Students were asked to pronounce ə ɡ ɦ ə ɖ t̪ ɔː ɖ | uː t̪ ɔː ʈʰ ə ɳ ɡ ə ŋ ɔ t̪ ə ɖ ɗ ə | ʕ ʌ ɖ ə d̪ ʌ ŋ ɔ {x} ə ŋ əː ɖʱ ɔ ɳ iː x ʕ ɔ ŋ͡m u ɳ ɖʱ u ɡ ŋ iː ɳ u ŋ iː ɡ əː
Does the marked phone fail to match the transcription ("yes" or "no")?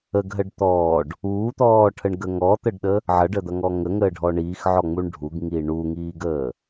yes